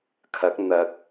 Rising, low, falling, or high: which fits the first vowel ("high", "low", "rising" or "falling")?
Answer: rising